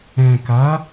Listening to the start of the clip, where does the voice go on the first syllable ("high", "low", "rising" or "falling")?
low